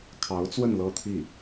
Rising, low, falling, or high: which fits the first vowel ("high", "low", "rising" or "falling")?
rising